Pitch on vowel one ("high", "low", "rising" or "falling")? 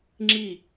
falling